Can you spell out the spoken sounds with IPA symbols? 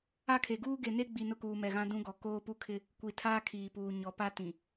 a˦ kʰ e˨ ɡ uː˦ ɡ e˨ n e˦ ɡ͡b i˨ n ʊ˦ k uː˨ m ɛ˨ ɣ ã˦ d ũ˦ ɡ ɔ˨ k oː˦ p u˦ kʰ ɪ˦ | kʷ i˨ tʰ aː˦ kʰ iː˨ p uː˨ ɲ ɔ˨ p a˦ t ĩ˨

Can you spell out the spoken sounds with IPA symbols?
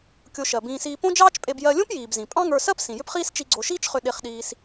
kʲ o˧ ʃ ɜ˩ b ĩː˧ s iː˧ p õ˥ d͡ʒ ɑː˥ t͡ʃ pʼ e˧ b j ɜ˧ lʲ õ˥ p j iː˩ b z ĩ˩ pʼ ɑ̃˥ ŋ ə˞˧ s ɜ˥ p s ĩ˩ j ʏ˥ p χ iː˥ s t͡ʃ i˧ ɡ͡ǀ o˧ ʃ iː˥ t͡ʃ χ ʏ˧ ɗ e˧ χ ɗ iː˧ s

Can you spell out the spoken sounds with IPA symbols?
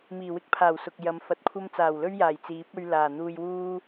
m iː˨˩ w ɪ˥ k̚ pʰ aː˨˩ w s ʊ˨ k̚ j ɐ˨˧ m f ɐ˨˥ t̚ kʷʰ ɐ˥ m t͡s aː˨˩ w l ɵ˥ ɥ j aː˨˩ j t͡s iː˨˥ p̚ ɵ˧ ɥ l aː˨˩ n̪ uː˧ j w uː˥

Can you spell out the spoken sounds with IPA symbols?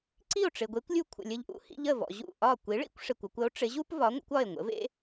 ǀ i˥˩ o̯ ʈ͡ʂ ɪ˩ ɡʷ e˩˥ kʷ lʲ u˧ kʷʰ ə̰˩ lʲ ə˧ ʎ ʔ ṵ˧ h ḭ˧ ʎ ə˥˩ v ɔ̰˩ ʑ ṵ˥˩ ʔ ɒ˥˩ kʷ i˩˥ ɭ ḭ˥ kʷ ʂ ɪ˩ kʷ ɒ˧ kʷ ə˩˥ o̯ ʈ͡ʂ ɪ˩˥ ʑ u˥ p v ɒ˩˥ ŋʷ ə̰˩˥ kʷ ɒ˥˩ e̯ ŋʷ ə̰˩˥ v ḛ˥

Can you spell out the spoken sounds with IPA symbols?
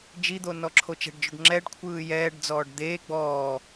d͡ʒ i d̪ o n ɔ ǁʰ o t͡ʃ ɛ̤ ɖ d͡ʒ o ɖ ŋ͡ǁ ɛ ɖ kʷʰ ɯː j ɛː ɖ d͡z ɔː ɖ d̪ eː ɡ͡b ɔː

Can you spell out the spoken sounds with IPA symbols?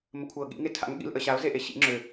m ə kʷʰ ɤ ɠ ḭ ŋ e tʰ a̰ ŋ ɠ ḭ l ʔ ə ɕ a ʊ̯ z e ʔ e ɕ ḭ ŋ͡ǁ ø

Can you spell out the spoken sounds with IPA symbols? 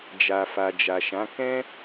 d͡ʒ a˨ f a˨ d͡ʒ a˨ ʃ ã˨˦ k ɛ̃˦

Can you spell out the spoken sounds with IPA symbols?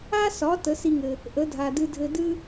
a˥ s ɒ˩˥ t ə˩˥ s i˧ ŋ ɘ˩ | ʔ ə˩˥ dʱ a˩ d ɨ˧ dʱ ɘ˧ d ɨ˥

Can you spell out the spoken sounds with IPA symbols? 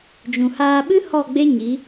d͡ʒ ũ˨ h aː˧ ɓ ɨ˦ h ɔ˦˨ ɡ͡b e˦ ɲ i˨˦

